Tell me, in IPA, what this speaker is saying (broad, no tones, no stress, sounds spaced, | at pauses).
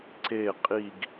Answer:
ǀ e qʼ i ɡ